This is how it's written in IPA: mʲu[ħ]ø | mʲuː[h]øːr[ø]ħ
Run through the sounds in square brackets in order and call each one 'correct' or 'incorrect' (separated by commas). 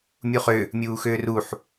incorrect, incorrect, incorrect